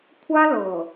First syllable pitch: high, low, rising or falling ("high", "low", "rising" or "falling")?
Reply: high